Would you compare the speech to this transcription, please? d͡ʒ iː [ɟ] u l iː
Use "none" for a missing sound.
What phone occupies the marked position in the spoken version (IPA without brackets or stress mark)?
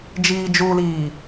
d͡ʒ